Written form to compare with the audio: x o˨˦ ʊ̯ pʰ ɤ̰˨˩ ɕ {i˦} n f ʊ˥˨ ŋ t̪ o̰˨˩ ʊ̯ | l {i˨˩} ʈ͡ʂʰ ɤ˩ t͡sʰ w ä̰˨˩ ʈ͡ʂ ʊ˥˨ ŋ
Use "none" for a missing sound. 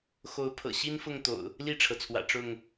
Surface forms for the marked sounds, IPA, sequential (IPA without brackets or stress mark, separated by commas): i˦, i˥˨